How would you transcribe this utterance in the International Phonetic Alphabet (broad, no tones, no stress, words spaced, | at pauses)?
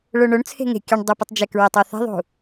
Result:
ɭoɳoɳt͡sʰe̤ ŋe̤ kʲʊɳ dˤuputˤd͡ʒɛkɹɛtˤ ɔθɛ̤ðˤṳ